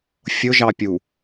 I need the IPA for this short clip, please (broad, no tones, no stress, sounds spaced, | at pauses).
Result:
fʲ ʊ ʒ ɑ pʲ u